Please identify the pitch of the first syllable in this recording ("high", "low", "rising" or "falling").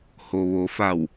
low